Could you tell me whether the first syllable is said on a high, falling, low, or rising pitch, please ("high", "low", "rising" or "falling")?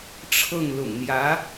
falling